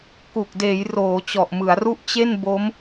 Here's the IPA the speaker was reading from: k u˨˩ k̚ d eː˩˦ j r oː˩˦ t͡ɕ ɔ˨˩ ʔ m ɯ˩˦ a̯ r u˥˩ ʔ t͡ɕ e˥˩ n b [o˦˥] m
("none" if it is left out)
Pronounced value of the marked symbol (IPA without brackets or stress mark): o˦˥